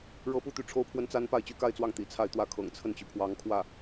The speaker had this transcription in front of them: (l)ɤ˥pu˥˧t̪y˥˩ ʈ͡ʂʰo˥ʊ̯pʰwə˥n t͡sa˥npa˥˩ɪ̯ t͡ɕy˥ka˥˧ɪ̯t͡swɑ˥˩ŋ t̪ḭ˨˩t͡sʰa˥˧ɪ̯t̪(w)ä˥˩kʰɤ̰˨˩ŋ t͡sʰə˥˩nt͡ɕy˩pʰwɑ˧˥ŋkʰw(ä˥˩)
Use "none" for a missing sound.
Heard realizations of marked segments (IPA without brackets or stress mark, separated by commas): ɻ, w, ä˥˩